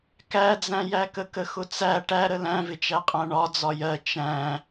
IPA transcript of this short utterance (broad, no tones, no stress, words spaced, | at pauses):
kæd͡zæ̃jækə kəxʊt͡sæ ʈæɾə læ̃vɪt͡ʃæqʼæ̃ ɳɒ d͡zɒjɜ t͡ʃæ̃